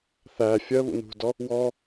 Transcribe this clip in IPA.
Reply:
θæ fʲɜ βṵnṳdɔ | wɔ

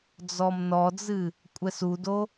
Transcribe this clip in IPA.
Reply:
d͡zɔmnɔd͡zɨ | kʷʼɛsudo

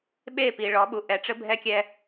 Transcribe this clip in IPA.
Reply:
ɓe˦˨pi˨ ɭɔ˨˦ɓu˨ ʔɛ˨ʈ͡ʂɘ˦ bʱɛ˦kʲɛ˦

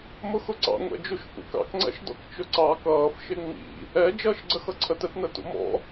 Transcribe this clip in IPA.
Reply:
mʊxʊǀɑ̰ ŋʷɛ̰d͡ʒuʃfṵkɑ̰k ŋ͡ǀɛ̰ʃdɔ̰kt͡ʃʊǀɑ kʌːf ʃɪŋ͡mḭ | ɛ d͡ʒʌːʃɡ͡ǀəxʌǀʰət ɛtnətṵmɔ̰

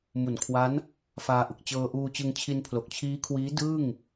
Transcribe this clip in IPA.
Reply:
mu˨˩nkʰwa˦˥n | faː˧ʔɯ˨˩k̚ t͡ɕɤː˧ʔuː˧t͡ɕɯ˧ŋ t͡ɕʰi˧npʰlo˨˩k̚t͡ɕʰiː˦˥kʰwiː˦˥ dɯː˥˩ŋ

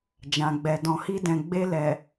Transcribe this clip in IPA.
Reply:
d͡ʒã˨ɡ͡bɛ˨ dɔ̃˨hi˧dɛ̃˨ ɡ͡be˧lɛ˨

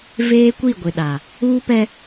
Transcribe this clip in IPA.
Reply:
veː˦kʷi˦˨ɡʷɪ˨ ɗa˨ | uː˦pɛ˦

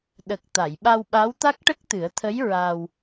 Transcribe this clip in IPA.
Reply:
ɗə˨˩k̚ t̪a˨˩˨jɓa˧wɓa˧˥wt̪a˦˥k̚ ʈə˦˥k̚t̪ɨ˨˩˦ə̯t̪ʰə˧˥j ɹa˧w

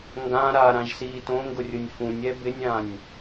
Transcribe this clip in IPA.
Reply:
ŋɡã ɾaɾãʒsiː tõŋɡʊrʲʊnʲ fũnʲɛ bɪnʲãnʲ

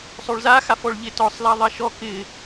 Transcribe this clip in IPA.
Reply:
sˤoɭzaxafɔɭ ʎɪtɔsˤla ðˤaʃɔ kɪ

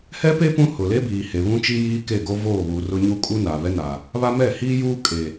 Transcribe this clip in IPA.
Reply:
hɛ˦pe˦ pũ˦hʊ˨ le˦biː˨ he˨βũ˦t͡ʃi˦ jiː˦ ke˦˨ɡo˦voː˦˨βuː˨ rʊ˦ɲu˦ kʼu˦ naː˨βɛ˦naː˨ | βa˦ mɛ˦˨hiː˦juː˦ kʼe˨

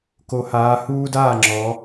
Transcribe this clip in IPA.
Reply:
ko˩˧haː˩˧ huː˦daː˥˩ŋ͡ǁɔ˩˧

